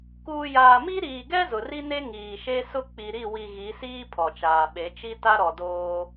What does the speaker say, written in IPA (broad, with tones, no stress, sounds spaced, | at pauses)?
k uː˨ j aː˨ m i˦ ɾ iː˨ ɡ ɛ˦ z ʊ˨ r i˦ n e˦ ŋ iː˨ ʃ e˦ s ʊ˦ k͡p i˨ ɾ i˦˨ w i˨ ɣ i˨˦ s iː˦ pʰ ɔ˨ t͡ʃ aː˨ ɓ e˨˦ t͡ʃ i˦ t a˦ ɾ ɔ˨ d oː˦